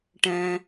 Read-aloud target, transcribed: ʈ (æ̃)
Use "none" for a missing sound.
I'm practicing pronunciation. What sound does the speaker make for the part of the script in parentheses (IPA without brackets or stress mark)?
ɛ̃